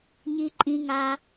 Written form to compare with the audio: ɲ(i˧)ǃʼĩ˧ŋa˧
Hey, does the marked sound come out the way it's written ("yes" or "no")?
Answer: yes